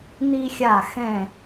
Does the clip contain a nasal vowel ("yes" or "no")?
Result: yes